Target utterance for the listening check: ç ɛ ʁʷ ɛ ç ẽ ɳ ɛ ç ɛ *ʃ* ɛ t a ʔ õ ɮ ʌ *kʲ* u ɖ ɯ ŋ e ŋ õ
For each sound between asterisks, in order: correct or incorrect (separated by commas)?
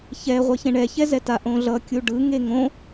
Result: incorrect, correct